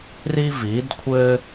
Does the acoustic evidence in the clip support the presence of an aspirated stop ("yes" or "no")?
yes